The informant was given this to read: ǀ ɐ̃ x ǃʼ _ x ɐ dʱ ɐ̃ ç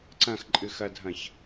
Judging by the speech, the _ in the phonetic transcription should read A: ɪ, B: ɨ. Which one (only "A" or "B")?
B